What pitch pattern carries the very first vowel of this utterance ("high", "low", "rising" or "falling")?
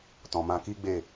low